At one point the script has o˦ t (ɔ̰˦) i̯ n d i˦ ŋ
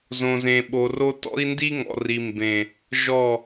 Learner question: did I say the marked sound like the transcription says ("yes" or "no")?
yes